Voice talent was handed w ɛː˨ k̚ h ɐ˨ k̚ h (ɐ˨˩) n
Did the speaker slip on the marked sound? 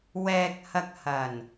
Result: no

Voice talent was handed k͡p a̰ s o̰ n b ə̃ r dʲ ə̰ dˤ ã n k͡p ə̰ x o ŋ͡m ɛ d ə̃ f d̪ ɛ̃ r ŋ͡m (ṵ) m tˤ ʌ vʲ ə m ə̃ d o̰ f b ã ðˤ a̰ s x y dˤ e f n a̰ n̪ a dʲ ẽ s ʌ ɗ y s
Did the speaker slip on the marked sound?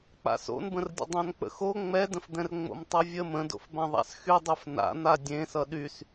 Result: yes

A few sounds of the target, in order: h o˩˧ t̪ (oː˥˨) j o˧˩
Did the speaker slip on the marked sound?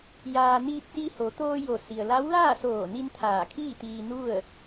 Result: yes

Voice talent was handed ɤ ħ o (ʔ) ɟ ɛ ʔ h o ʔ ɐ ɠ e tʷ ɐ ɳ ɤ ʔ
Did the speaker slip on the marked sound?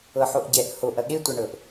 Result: no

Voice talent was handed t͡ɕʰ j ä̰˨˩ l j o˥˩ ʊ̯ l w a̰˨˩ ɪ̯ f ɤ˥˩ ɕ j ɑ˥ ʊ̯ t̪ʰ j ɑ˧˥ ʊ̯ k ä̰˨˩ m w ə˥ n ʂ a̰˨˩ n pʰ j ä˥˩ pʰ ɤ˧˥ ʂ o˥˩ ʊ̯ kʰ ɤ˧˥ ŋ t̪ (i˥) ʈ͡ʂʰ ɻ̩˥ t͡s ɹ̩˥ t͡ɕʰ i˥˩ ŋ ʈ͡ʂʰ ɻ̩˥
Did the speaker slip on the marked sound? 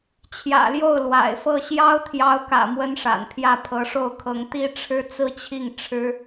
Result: no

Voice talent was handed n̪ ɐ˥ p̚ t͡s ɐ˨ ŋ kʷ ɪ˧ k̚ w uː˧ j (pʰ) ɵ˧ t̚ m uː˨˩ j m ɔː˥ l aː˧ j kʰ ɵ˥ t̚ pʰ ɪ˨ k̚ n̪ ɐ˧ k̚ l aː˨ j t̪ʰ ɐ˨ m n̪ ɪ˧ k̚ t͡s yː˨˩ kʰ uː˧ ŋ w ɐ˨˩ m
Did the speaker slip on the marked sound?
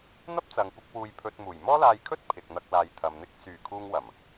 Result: no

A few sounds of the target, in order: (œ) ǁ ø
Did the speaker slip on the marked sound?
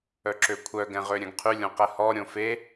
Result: no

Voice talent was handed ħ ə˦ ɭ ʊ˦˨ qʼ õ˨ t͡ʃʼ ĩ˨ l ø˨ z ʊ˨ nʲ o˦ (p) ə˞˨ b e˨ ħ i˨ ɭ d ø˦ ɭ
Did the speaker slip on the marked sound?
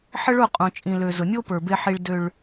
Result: no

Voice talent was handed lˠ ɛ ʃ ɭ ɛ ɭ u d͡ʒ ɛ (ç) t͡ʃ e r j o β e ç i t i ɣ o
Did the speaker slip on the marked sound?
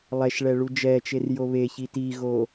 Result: yes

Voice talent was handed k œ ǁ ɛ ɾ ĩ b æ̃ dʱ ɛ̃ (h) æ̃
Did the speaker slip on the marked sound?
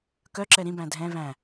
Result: yes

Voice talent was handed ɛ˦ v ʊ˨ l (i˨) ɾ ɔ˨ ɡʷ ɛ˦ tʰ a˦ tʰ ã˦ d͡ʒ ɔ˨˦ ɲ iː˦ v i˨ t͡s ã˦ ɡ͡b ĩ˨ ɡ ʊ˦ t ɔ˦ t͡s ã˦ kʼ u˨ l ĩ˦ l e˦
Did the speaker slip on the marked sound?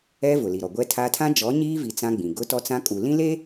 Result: no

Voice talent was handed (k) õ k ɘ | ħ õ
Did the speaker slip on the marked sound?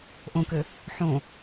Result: yes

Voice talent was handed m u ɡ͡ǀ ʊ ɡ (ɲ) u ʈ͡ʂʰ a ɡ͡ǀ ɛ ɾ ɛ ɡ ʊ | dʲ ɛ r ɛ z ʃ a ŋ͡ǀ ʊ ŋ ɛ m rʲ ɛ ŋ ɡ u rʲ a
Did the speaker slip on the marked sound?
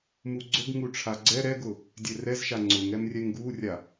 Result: yes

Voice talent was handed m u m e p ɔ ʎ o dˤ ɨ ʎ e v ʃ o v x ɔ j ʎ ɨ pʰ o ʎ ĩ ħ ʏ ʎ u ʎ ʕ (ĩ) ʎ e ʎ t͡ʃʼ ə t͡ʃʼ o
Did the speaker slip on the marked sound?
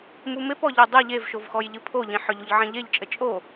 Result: no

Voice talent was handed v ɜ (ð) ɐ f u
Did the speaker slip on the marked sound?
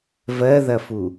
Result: no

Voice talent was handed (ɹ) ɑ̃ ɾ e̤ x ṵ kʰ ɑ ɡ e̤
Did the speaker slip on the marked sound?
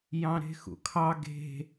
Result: yes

